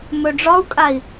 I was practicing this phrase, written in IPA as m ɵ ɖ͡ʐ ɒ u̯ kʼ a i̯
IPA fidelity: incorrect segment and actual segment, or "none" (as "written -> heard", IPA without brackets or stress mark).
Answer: none